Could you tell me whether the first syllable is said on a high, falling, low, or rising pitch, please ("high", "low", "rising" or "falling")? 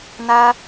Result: high